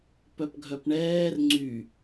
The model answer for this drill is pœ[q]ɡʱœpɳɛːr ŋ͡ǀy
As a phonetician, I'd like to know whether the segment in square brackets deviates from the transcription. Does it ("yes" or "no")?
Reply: yes